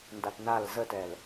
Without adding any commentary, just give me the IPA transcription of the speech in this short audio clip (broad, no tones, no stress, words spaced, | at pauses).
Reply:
ndatnal zətɛl